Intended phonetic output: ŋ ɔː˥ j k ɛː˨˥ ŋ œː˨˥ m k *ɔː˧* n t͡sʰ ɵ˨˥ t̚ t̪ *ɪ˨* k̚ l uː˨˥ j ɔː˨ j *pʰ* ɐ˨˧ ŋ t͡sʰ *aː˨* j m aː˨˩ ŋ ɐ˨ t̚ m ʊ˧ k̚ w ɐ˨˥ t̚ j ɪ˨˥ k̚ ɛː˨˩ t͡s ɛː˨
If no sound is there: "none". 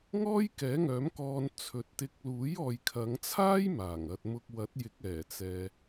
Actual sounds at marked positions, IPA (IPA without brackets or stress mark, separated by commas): ɔː˧, ɪ˧, kʰ, aː˥